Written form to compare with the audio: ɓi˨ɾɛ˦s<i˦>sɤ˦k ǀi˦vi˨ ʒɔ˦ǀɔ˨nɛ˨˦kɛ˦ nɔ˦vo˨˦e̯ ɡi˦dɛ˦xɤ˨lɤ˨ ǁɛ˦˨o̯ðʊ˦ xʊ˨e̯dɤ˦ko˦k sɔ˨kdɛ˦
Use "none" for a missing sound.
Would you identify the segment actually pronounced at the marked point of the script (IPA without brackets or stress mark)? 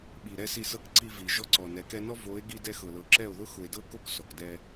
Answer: i˦˨